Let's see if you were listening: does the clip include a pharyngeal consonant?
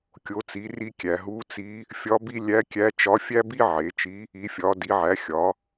yes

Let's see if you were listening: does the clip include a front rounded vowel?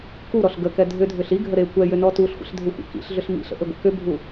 yes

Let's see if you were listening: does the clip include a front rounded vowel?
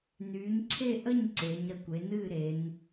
yes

